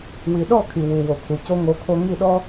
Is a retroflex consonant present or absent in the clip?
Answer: absent